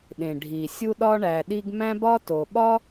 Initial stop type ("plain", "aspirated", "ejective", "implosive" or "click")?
implosive